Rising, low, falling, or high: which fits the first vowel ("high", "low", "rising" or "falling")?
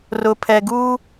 low